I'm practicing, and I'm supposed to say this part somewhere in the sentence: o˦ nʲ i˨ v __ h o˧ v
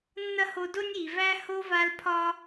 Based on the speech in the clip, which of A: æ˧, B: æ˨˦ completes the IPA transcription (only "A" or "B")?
A